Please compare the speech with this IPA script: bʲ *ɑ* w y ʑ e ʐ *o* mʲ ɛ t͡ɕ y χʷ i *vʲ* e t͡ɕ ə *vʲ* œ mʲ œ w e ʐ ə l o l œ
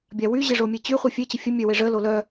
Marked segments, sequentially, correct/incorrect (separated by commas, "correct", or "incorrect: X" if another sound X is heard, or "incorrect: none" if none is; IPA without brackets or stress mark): incorrect: a, correct, incorrect: fʲ, incorrect: fʲ